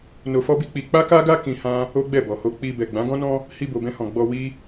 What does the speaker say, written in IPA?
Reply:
n o˧ f ɔ˦ b i˦ k͡p i˧ k͡p a˦ k a˦ ɡ a˦ k ĩ˧ h ã˦ | o˦ ɡ͡b ɛ˦˨ b ɔ˨ h o˧ k͡p i˧ b ɛ˨ ɡ͡b ã˨˦ ɡ ɔ̃˦ n ɔ̃˦ | h i˧ b o˨ b ɛ̃˧ h ɔ̃˨ ɡ͡b ɔ˧ w i˦

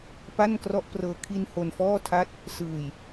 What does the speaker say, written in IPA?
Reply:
p a˥˩ n k r ɔ˥˩ ʔ p r ɤː˨˩ kʰ i˧ n h o˧ n f ɔː˥˩ tʰ a˥˩ t̚ | s ɯː˨˩ j

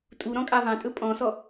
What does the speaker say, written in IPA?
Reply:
tʼ u ɾ ɔ̃ kʼ a ðˤ ã tʼ ɵ pʼ ɔ̃ s ɔ

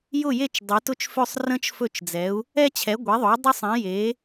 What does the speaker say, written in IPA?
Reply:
j ʊ˥˩ j e˥˩ t͡ʃ dˤ e˩˥ t ʊ˥˩ t͡ʃ f ø˥˩ sˤ r ə̃˦ t͡ʃ f ɵ˥˩ t͡ʃ d͡z ɛ˩˥ u̯ | ɛ˦ t͡ɕʰ ɛ˩˥ ɡʷ e˩˥ ðˤ o˩˥ dˤ ɵ˦ sˤ ɛ̃˩˥ j e˩˥

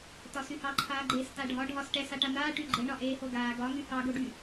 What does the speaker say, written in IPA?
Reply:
t ɒ s y h ɑ ǃʰ aː ɡ͡ǃ eː s t a ɖʱ ɒ ɖʱ ɒ s ʈ ɛ s a ʈ a n̪ aː ʈ y ɡ͡ǃ e ɳ ɒ ʔ eː h o ɡ aː ɡ ɒ ŋ y h ɑ ɡ o ɖ y

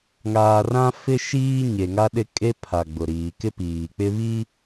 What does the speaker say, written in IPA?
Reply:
ŋ aː˨ r ã˦ f ɪ˦ ʃ iː˦ ɲ e˨ ŋ a˦ ɗ ɪ˦ kʼ e˦ pʰ a˨ ɡ͡b ʊ˨ ɾ iː˨ k ɪ˦ p iː˨ k͡p ɪ˦ β i˦

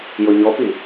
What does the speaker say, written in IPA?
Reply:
j ʊ ɲ ɔ p i

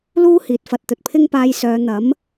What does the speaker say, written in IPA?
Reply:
l uː˥ h iː˨ t̚ f ɐ˧ t̚ t̪ ɵ˨ t̚ pʰ ɪ˥ ŋ p aː˧ j s œː˨˧ n̪ ɐ˨˥ m

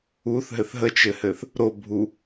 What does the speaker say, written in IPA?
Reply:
u θ ɦ ɘ θ ɦ ə t͡ʃ ɘ h ɘ θ | ɾ o bʱ u

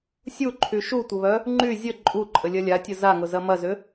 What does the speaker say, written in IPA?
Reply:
sʲ u ǃʰ y ʃ u tʷ ə β œ | ŋ͡ǃ y zʲ ə ǃʼ u ǃʼ ə lʲ ɐ lʲ a tʲ ʊ z a ŋ ʊ z ɐ m ɐ z ʏ

